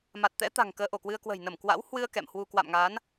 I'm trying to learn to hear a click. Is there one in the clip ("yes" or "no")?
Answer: no